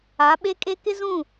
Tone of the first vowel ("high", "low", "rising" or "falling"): rising